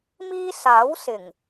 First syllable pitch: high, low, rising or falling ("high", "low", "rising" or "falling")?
high